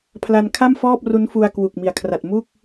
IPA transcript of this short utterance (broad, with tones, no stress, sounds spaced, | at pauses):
pʰ l a˧ n kʰ a˥˩ m f ɔː˥˩ p̚ r u˦˥ n f u˧ a̯ k w u˨˩ k̚ m i˩˦ a̯ kʰ r a˨˩ t̚ m u˥˩ k̚